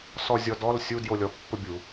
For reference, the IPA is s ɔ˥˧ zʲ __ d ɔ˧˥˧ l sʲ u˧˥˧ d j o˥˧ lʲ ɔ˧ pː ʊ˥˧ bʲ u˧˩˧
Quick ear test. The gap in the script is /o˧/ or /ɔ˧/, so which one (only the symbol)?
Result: ɔ˧